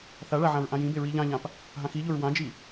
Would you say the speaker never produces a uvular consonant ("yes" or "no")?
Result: yes